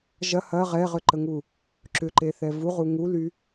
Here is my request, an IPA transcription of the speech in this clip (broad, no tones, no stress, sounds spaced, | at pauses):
ʒ ɐ h ɐ ʁ ɛ ʁ ʏ ǃ ə ŋ u | ǁ ʏ ǃ e θ ɛ v u ʁ u ŋ u l y